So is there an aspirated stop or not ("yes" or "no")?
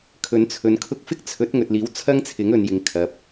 yes